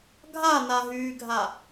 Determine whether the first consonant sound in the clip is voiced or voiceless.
voiced